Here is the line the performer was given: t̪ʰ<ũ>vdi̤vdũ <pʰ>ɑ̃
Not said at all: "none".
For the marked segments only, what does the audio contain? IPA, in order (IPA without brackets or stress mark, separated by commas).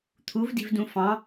u, f